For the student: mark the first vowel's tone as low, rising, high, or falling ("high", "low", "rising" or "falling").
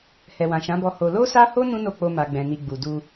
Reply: low